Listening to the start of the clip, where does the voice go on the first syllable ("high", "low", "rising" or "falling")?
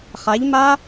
rising